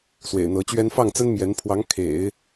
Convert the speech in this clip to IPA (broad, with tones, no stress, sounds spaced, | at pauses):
s w ḛ˨˩ ɪ̯ n̪ ɤ˧˥ t͡ɕ ɥ ɛ˥ n f ɑ˥˩ ŋ t͡s ə˥ n m j ɛ˧˥ n pʰ w ɑ˧˥ ŋ kʰ ḛ˨˩˦ ɪ̯